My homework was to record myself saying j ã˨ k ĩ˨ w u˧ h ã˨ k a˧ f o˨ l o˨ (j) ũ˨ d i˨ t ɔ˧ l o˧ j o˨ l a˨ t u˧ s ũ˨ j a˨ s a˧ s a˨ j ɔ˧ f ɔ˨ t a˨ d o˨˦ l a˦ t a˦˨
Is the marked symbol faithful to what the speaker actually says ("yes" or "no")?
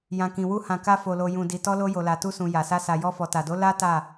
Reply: yes